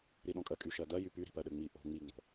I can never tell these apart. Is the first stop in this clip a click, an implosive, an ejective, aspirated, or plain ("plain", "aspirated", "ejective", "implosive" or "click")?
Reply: implosive